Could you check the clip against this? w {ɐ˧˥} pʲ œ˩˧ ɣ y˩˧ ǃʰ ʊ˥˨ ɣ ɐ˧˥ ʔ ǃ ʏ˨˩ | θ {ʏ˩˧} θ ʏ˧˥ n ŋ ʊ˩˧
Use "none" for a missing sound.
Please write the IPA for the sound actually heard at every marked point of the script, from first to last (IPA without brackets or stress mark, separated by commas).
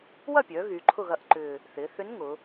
ɐ˥˨, ɪ˩˧